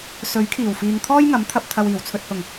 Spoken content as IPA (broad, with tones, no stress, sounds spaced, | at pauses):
s ɵ˨˥ ɥ kʰ iː˨˩ w f iː˨ ŋ t̪ʰ ɔː˥ j ŋ ɐ˨˥ m t̪ʰ ɐ˨ p̚ t̪ʰ ɐ˨ w iː˨˩ w t͡sʰ ɵ˨ t̚ h ʊ˨˩ ŋ